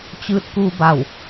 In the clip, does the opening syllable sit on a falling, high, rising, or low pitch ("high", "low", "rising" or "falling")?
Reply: rising